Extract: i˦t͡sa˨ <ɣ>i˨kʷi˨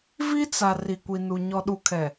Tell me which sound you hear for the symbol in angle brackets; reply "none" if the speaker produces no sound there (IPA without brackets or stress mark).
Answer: r